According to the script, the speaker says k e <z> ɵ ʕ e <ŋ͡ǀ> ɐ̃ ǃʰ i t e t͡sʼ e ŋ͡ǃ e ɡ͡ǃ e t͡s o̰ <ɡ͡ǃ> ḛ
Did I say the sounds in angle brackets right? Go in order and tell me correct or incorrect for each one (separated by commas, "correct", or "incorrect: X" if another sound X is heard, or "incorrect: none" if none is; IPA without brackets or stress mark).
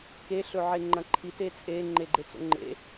incorrect: ɬ, incorrect: ŋ͡ǃ, incorrect: ŋ͡ǃ